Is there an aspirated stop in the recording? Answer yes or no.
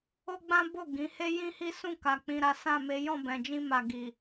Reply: no